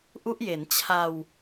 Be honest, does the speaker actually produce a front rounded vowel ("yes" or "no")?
no